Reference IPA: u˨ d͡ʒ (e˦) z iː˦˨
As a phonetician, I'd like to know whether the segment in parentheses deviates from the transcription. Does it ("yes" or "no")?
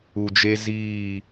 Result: no